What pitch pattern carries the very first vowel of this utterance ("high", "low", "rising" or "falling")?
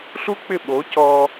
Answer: high